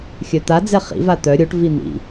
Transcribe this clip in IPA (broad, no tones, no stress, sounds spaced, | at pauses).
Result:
xʲ œ t̪ a d͡z ɛ χ ḭ v a t̪ œ ɾʲ o ʈ v i n̪ ḭ